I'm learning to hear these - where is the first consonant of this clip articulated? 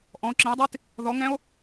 throat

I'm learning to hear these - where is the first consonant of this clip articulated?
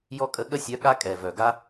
palate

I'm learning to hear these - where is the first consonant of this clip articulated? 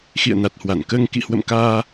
velum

